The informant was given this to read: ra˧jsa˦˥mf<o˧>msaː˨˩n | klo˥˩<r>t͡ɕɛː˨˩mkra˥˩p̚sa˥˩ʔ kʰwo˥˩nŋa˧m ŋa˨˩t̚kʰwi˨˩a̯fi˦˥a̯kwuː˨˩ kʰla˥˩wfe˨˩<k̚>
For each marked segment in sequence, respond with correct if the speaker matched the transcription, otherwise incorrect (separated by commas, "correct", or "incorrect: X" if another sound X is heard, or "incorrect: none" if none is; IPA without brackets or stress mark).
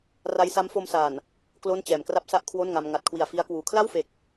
correct, incorrect: n, correct